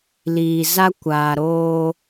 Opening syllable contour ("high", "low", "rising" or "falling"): low